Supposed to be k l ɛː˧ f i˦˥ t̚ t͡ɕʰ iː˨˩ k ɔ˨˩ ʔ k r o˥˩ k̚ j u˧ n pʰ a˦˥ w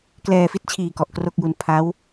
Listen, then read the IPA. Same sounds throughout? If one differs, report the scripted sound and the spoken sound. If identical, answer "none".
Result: none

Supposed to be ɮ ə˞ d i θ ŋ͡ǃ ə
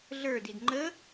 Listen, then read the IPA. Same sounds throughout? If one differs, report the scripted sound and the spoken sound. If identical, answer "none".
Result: θ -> d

